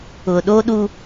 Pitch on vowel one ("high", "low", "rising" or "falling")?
low